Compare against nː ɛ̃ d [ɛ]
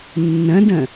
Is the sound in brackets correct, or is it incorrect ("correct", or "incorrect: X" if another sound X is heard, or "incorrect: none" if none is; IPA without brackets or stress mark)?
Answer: incorrect: ɛ̃